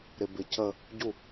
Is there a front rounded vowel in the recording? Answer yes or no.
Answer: no